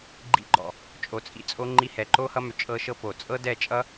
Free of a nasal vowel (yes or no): yes